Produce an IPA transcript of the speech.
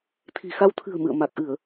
t̪ʰi̤˨˩xa˧w t̪ʰɨ̤˨˩ə̯ mɨ̰˧˨ə̯ ma˨˩k̚ʔɨ˧˩˨ə̯

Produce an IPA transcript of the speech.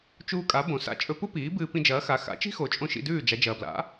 t͡ʃuː˧kʼa˩˥ bõ˩ sa̰˧ t͡ʃʼɵ˧pu˥piː˩˥ bɨː˧pĩ˧d͡ʒɐː˩˥xa˩˥ xa̰˩˥t͡ʃi̤˥xo˩˥t͡ʃʼõ˧ ʃḭ˧dʉː˥˩d͡ʒa˩˥ d͡ʒɐː˩bla̰˩˥

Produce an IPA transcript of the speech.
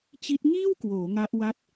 t͡ɕi˦˥t̚ ŋiː˥˩wkwoː˩˦ ŋa˦˥ʔ wa˦˥t̚

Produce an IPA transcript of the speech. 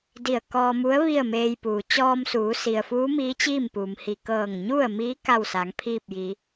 di˧˩ə̯kɔː˧mu˧˥ə̯ ʋi˥˨ə̯meː˧jpuː˩ t͡ɕɔː˧msuː˩˧si˩ə̯fuː˧˥ miː˧˥t͡ɕiː˥˨mpuː˩mhi˧˩ kɤː˧˩ŋɲu˥˨ə̯miː˧˥ ka˥˨wsa˩˧ŋpʰiː˥˨p̚jiː˩˧

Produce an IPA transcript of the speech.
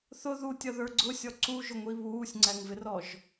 θʊ ðutʲʌðə˞ ɡ͡ǀʊsʲɔ ǀuʒʊŋʷi βuːsʲŋ͡ǀæŋvɪrɔʒ

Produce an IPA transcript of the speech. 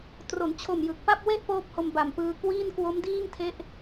tro˩˦nt͡ɕʰo˨˩mjɯ˨˩k̚ pa˥˩p̚we˥˩ʔ poː˥˩p̚ho˧mba˨˩mpɯː˧ kwiː˥˩nkwo˦˥mdiː˥˩ŋtʰe˦˥ʔ

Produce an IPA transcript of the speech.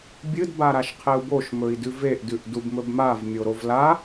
bʲɨd baɾaʃqʰeu̯boʃ mɵi̯dʉveʔ dʉʔdubmɵbmav mʲoɾovla

